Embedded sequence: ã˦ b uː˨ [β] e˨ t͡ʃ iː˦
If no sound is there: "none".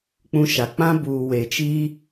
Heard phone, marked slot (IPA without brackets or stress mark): w